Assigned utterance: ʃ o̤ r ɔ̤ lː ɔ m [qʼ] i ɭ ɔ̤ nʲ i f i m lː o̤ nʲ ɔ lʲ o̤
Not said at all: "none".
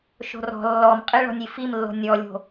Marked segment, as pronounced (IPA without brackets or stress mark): qʼ